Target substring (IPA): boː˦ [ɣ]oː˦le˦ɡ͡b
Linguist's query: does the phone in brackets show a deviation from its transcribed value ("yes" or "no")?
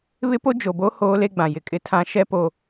yes